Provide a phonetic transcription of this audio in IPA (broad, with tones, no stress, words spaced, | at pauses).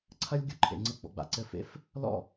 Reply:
ǀʰɐ˦lʲ ɡʲo˦ǃʰḛ˨ŋ͡ǀɘ˧ ɡ͡bɔ̰˨ɡ͡ba̰˨ ǀɘ˦˨fḛ˦f | lɔ̰˦˨